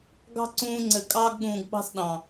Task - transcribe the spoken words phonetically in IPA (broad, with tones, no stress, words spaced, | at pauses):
ɡɑ̤˦ǀũː˧ ŋ͡ǀɘ˨ kʼɑː˧ɡɠũː˨ɡɓɑ̤˧s ɗɑ̃˨